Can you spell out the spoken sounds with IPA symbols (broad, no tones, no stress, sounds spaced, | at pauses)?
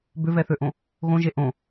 b ʏ v ɛ θ ø ʔ õ | ɣ õ ʒ e ʔ õ